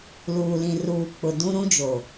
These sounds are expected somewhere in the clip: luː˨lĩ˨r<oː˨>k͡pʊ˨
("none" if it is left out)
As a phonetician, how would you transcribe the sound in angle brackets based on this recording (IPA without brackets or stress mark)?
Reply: uː˨